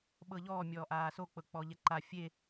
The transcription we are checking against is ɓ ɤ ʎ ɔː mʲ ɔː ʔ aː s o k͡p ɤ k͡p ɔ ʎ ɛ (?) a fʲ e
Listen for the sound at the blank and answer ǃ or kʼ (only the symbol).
ǃ